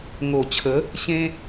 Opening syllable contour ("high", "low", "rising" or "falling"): low